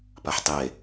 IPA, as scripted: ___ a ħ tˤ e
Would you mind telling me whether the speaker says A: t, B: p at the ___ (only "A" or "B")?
B